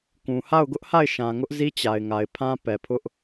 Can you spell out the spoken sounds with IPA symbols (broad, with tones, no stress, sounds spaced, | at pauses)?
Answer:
k ũ˨ h a˦˨ ʊ̯ ɡ ʊ˦ ʔ h a˦˨ ɪ̯ ʃ ã˨ ŋ ʊ˦ ʔ z i˦ t͡ɕ a˨ ɪ̯ ŋ a˨ ɪ̯ pʰ ã˦ p ɛ˨ pʰ ʊ˦ ʔ